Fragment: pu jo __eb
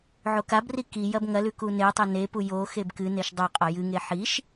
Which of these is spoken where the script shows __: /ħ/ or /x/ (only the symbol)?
x